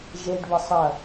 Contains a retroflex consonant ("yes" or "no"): yes